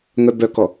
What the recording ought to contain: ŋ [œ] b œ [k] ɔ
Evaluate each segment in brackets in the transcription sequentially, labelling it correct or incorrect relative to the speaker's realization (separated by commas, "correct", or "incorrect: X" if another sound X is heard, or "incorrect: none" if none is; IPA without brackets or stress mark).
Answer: correct, correct